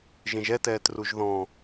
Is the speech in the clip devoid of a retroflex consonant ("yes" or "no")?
yes